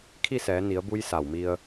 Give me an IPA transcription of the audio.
kʰi˥˨sɛː˩˧ni˩˧ə̯bu˧j sa˧˩wmi˧ə̯

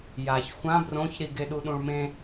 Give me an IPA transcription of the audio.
jaç xʷã brõçɾi ɡeɗuɗũɭmẽ

